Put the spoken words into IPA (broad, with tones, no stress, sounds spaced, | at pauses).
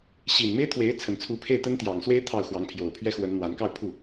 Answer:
ɕ i˨˩ n m e˥ ɪ̯ t̪ʰ w e˧˥ ɪ̯ t͡sʰ ə˨˩ n t͡sʰ u˧˥ pʰ e˥˩ ɪ̯ t̪ ə˥ n t̪ j ɑ˨˩ ŋ s w e˥ ɪ̯ t̪ʰ ɑ˥˩ ʊ̯ x w ɑ˧˥ ŋ pʰ j o˨˩ ʊ̯ pʰ ɥ ɛ˥ x w ə˧˥ n n̪ w a˧˥ n k ɑ˥˧ ʊ̯ pʰ u˥˩